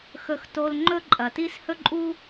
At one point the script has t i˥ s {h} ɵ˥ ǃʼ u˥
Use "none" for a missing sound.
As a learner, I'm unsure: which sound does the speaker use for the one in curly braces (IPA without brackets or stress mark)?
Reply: h